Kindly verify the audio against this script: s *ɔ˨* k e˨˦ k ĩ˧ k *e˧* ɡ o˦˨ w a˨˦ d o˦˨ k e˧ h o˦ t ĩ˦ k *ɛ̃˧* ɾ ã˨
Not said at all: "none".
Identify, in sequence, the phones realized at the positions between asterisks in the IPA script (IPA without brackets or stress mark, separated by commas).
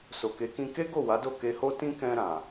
o˨, e˦, ɛ̃˧